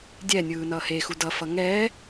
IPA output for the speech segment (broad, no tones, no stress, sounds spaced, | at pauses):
dʲ ɛ nʲ ɯː n ʌː h e x u d ʌ f ʌ ŋ ɛː